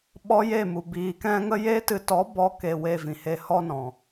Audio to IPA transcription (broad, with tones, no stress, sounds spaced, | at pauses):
ɓ ɔ˦ j e˦˨ m u˨ b iː˨ k ɛ̃˦ ŋ ə˦ j e˦ t ɨ˧ t ɔ˨˦ b ɔ˧ k e˧ w e˧ v ĩ˨ h e˧ h ɔ˦ n ɔ̃˨